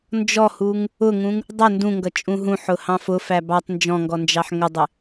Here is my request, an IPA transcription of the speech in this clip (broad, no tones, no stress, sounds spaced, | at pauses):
n d͡ʒ ɔ h u ŋ | ʊ ŋ ũ ŋ | dˤ ɛ n d ũ ŋ ɡ ʌ t͡ʃʼ ũ ɦ ũ ħ ʊ h ɑ̃ f ʊ f æ b ɑ tˤ n d͡ʒ ɔ̃ ŋ ɡ ɔ n d͡ʒ ɑ ħ ŋ ə dˤ ɪ